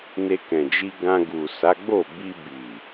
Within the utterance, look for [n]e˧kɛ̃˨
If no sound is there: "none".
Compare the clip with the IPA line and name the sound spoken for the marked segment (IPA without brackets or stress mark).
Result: n